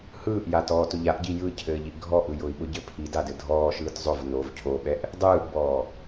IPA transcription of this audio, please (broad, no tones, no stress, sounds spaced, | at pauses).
h ɯː ʔ j a t ɔː t ʊ ʎ a ʔ ɟ i j ɯ cʰ ɘː ʎ i ʔ ɡʱ ɔ ʔ ɯ j ʊ i̯ ɓ ʊ ɟ ɘ pʰ i d a d ɘ dʱ ɔː ʃ ɯː t zˤ ʊ v n o v cʰ o ɓ ɛ ʔ | dˤ ɯː ʔ b ɔː